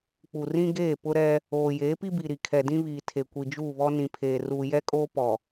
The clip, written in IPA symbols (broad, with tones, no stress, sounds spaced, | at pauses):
k͡p u˨ r ĩ˦ ɡ eː˦˨ p ʊ˦ ɾ ɛ˦ | oː˨ j eː˨˦ p i˦ b i˨ ɾ i˨ kʰ ɛ˨ d ĩ˦ β iː˨ tʰ e˨ kʷ i˨ d͡ʒ uː˦˨ β ɔ˦ n ĩ˨ pʰ eː˨ r uː˨ j ɛ˦ kʼ oː˦ p ɔ˨